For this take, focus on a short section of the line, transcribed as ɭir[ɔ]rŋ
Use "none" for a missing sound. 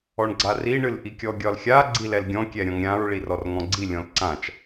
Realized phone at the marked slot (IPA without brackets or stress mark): ɔ